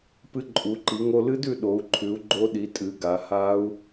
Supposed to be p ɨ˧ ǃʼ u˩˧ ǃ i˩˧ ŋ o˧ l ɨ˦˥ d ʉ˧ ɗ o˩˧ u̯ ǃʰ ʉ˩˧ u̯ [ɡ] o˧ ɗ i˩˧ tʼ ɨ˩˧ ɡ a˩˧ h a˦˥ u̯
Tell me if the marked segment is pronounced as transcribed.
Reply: no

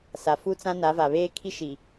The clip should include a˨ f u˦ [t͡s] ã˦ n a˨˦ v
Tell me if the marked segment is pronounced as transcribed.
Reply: yes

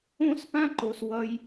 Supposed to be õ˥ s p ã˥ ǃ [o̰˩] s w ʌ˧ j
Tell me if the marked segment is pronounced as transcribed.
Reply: no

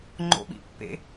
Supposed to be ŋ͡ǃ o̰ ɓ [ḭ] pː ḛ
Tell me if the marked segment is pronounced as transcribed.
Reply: yes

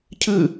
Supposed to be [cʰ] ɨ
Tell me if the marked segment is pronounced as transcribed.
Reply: yes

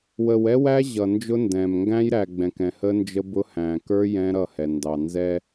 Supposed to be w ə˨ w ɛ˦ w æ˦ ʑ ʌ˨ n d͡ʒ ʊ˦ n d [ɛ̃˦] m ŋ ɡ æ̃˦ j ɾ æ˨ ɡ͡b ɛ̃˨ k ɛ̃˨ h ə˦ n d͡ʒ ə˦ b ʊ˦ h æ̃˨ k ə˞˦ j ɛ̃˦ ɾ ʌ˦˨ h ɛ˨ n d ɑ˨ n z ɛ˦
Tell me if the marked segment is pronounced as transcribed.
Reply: no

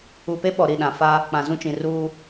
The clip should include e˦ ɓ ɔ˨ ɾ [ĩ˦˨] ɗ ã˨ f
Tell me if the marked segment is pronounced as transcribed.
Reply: no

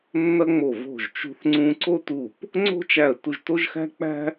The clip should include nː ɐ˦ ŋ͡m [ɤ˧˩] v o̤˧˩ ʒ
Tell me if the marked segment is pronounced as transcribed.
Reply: no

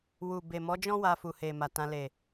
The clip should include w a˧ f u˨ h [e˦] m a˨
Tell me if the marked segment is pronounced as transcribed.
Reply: no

